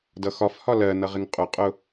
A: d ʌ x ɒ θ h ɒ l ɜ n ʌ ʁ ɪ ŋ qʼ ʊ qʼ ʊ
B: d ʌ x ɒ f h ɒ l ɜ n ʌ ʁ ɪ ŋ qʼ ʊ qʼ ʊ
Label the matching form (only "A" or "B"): B